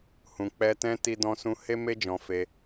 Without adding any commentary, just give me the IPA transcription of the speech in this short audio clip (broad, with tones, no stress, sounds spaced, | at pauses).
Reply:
h ũ˨ k͡p ɛ˧ t ɛ̃˦ t i˧ d ɔ̃˧ s ũ˧ h e˦ m e˦ d͡ʒ ɔ̃˧ f e˧